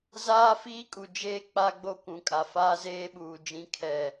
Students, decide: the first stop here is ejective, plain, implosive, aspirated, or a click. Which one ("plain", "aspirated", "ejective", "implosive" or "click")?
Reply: ejective